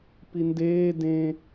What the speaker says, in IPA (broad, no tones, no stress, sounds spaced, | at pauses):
p i n d eː d ẽ